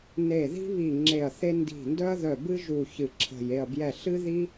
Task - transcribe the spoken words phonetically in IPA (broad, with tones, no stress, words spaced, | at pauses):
ne˧˩ði̤˥βi˧˩ ŋ͡ǁe˧˩ɐ̯θe˥ ndi̤˧˩ndœ˥ɐ̯ðœ˧˩ bɨ˥ʒu˧˩ çɨ˧˩ǁʰə̤˧˩j e˧˩ɐ̯bjɛ˧˩ɬɨ˥ ði˥